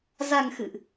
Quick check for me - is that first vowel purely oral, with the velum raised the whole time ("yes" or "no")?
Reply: yes